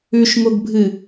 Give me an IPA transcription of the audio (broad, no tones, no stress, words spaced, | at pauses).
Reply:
ʉʃŋoɡbʱɨ